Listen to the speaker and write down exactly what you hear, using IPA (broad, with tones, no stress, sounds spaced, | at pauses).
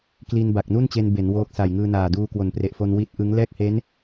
k l i˧ n b a˨˩ k̚ n u˥˩ n t͡ɕ e˧ n b e˩˦ n w oː˦˥ k̚ s a˨˩ j ŋ ɯː˧ n aː˨˩ d uː˧ k w o˩˦ n p r e˨˩ ʔ f o˧ n w i˦˥ t̚ ʔ ɯ˦˥ ŋ l ɛː˥˩ k̚ h e˦˥ n